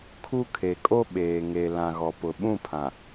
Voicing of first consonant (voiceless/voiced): voiceless